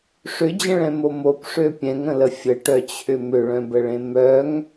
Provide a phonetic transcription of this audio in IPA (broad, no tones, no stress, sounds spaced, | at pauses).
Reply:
ʂ ʏ d͡ʑ ə̃ ɭ ɛ̃ m o m o p ʂ ø pʲ ɛ̃ ŋ ə̃ l ə fʲ ə ʈ œ t͡ɕʰ ʏ m ʏ ɭ œ̃ b ə ɭ ẽ m œ ŋ